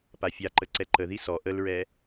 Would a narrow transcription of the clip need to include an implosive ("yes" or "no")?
no